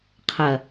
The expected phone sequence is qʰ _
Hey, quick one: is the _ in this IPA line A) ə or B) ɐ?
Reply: B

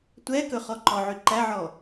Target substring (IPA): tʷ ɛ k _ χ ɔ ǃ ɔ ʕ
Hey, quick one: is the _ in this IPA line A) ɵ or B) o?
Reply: A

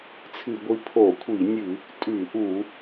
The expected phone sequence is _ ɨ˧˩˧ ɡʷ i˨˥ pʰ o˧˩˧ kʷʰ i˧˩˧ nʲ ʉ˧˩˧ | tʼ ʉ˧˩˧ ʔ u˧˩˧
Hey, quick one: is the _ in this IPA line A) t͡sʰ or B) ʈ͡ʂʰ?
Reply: A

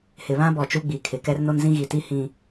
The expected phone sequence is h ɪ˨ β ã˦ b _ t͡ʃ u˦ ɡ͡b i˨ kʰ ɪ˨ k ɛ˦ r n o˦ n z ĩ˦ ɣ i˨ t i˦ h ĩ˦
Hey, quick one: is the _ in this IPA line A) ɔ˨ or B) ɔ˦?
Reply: A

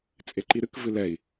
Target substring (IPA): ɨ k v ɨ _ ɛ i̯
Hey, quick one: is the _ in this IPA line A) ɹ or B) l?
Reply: B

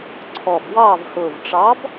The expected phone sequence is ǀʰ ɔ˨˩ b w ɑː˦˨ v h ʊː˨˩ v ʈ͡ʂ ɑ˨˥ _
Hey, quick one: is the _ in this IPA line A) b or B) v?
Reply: A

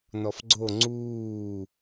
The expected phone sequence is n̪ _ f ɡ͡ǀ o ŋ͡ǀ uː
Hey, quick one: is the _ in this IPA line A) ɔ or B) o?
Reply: A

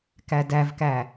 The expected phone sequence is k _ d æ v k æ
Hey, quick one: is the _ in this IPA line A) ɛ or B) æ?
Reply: B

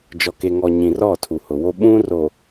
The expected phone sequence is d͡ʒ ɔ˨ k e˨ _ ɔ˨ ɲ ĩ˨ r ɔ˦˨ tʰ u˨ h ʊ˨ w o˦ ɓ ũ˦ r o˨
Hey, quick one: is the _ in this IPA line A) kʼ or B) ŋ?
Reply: B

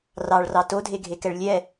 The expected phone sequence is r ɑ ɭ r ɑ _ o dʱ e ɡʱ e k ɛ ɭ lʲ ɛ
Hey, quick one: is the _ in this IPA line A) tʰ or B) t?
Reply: B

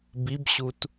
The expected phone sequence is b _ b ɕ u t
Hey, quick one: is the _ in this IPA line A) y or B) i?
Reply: B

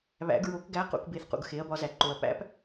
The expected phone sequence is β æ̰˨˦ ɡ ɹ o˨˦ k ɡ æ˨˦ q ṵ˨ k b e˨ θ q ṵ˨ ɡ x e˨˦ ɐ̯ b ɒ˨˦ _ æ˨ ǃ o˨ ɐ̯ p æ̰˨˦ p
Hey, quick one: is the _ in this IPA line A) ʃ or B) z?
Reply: B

